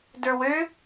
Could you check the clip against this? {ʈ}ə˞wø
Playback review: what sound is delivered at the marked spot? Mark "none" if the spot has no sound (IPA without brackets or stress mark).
d